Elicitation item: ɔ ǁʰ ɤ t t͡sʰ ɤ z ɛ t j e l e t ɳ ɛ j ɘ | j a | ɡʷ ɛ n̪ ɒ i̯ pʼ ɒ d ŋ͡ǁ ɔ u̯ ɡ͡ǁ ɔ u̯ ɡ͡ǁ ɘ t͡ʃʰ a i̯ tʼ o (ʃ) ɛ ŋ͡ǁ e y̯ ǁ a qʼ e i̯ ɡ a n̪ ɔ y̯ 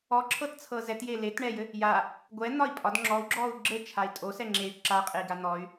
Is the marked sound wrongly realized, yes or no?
yes